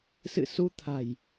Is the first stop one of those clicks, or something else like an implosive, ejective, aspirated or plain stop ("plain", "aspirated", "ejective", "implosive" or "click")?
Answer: aspirated